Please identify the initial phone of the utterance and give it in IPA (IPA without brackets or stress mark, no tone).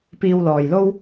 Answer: p